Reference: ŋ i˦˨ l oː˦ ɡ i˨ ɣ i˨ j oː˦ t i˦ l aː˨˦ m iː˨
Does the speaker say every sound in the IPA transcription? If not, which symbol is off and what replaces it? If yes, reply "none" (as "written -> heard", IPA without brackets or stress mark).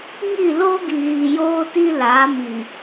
none